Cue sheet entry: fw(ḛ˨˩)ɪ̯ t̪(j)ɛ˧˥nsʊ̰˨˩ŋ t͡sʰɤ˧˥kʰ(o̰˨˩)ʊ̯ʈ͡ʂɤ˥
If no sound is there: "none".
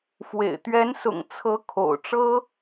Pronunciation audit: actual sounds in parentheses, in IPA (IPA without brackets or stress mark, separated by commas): ḛ˨˩, ɥ, o̰˨˩